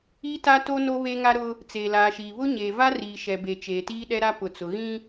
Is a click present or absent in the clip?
absent